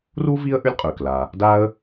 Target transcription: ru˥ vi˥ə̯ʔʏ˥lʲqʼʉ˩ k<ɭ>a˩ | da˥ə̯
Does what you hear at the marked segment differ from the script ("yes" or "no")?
yes